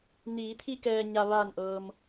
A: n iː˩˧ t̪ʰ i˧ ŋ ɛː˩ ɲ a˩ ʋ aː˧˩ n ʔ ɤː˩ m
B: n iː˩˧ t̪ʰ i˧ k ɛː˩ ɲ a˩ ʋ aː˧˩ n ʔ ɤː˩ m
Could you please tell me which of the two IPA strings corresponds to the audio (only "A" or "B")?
B